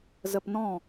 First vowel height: mid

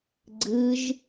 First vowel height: high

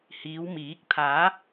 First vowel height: high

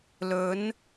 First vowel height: mid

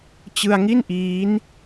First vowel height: high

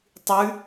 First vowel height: high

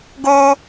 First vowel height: mid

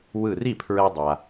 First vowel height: high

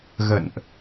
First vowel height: mid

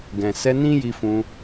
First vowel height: mid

